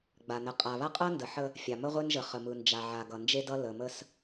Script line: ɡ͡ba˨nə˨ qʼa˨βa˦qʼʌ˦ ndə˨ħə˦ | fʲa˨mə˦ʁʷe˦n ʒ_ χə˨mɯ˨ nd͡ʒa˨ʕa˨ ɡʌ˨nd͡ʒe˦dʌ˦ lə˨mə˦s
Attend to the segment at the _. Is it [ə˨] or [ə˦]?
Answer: ə˨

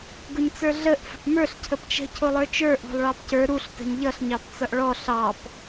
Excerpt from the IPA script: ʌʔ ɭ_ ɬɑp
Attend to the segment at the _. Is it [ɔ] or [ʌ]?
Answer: ɔ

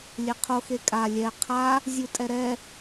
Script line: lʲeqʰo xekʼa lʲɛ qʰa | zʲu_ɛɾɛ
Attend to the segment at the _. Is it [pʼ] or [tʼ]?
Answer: tʼ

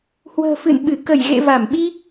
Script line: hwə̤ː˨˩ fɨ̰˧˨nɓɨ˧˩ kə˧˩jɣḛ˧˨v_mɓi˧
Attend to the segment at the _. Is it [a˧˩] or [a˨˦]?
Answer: a˧˩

